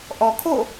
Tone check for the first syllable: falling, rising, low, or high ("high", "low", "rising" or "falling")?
low